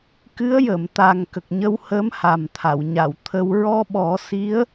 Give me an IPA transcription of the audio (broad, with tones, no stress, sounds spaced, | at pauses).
k ɨ˧˥ ə̯ j ə˨˩˨ m t̪ a˨˩ ŋ k ə˨˩ k̚ ɲ ə˧ w h əː˧˥ m h a˨˩ m t̪ʰ a˨˩˨ w ɲ a˨˩˨ w t̪ʰ ə˧ w ɹ ɔ˧ ɓ ɔ˨˩˦ s i˧˥ ə̯